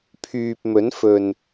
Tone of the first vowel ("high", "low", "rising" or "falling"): low